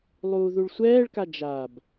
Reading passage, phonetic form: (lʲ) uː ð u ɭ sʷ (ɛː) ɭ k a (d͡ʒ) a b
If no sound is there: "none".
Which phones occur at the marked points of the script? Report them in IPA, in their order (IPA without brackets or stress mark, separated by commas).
lˠ, ɛː, d͡ʒ